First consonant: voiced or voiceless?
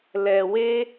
voiced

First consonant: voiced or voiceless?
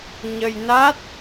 voiced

